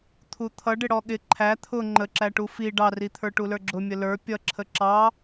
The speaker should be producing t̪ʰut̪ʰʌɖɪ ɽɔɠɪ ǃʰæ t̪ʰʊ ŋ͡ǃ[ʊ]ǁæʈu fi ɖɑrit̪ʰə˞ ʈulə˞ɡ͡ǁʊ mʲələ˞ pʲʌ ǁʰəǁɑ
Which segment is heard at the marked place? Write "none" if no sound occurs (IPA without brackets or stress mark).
ə